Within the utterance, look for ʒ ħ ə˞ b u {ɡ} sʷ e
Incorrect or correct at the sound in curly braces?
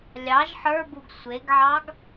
correct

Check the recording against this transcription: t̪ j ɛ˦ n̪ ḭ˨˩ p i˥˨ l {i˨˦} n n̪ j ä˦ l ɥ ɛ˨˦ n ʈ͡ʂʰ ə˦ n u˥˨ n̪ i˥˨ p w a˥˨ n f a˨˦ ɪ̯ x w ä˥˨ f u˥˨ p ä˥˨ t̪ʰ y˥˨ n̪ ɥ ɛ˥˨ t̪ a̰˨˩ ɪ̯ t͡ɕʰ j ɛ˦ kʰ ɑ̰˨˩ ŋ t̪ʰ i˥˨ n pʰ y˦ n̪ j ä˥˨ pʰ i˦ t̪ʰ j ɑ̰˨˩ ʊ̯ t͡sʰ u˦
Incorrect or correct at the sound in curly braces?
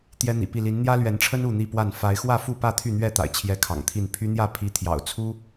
correct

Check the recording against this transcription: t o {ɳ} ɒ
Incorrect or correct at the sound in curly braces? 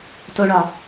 correct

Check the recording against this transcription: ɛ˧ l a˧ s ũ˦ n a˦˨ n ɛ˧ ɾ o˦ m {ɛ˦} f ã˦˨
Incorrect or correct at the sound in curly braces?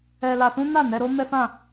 correct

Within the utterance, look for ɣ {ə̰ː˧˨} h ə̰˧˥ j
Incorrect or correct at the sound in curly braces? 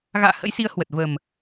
incorrect: a̰ː˧˨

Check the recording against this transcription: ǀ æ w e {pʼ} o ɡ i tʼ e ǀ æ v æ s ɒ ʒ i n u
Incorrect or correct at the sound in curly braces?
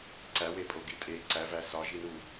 correct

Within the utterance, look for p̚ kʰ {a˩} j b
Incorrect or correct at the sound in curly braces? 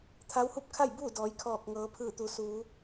incorrect: a˥˨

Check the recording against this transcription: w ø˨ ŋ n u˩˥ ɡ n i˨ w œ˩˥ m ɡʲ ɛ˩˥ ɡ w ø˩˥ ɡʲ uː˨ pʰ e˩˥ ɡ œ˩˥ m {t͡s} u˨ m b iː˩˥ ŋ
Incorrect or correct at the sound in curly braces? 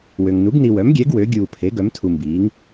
incorrect: tʰ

